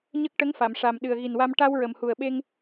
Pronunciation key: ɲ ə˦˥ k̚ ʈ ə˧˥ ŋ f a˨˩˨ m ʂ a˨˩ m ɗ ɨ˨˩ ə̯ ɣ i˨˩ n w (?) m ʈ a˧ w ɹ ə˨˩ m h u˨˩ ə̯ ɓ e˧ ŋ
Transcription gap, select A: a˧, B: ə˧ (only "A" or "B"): A